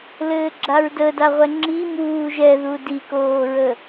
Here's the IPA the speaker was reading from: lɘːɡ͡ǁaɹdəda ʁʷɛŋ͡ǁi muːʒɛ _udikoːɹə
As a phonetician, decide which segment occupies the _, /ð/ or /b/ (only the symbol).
ð